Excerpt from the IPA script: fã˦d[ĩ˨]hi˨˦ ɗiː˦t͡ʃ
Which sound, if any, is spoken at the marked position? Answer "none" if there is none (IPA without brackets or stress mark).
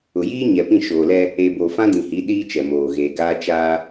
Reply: ĩ˨